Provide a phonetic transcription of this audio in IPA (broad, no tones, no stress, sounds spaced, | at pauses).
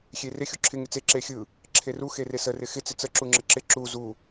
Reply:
xʲ e r ɪ xʲ u ǁʰ ɪ ŋ ɪ t͡s e ǁ e xʲ ɯ | ǁʰ e r u x e r e s ə r ɪ x ɪ t͡s ɪ t͡s ə ǁ u ŋ͡ǁ ə ǁ ɪ ǁ u z u